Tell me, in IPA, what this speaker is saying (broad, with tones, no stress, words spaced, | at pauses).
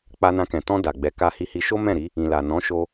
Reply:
k͡pa˧nã˧kɛ̃˨ tɔ̃˧ da˨ɡ͡bɛ˨˦ ka˧hi˧hi˧ʃo˦ mɛ̃˦˨ɾi˨˦ | ĩ˨la˨ nɔ̃˨˦ʃo˧